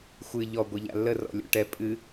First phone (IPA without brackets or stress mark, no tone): xʷ